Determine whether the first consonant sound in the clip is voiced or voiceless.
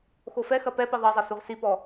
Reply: voiceless